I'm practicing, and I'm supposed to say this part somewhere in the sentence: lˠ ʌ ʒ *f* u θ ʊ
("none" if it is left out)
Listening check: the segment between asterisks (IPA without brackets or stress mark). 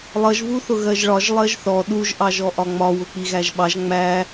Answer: v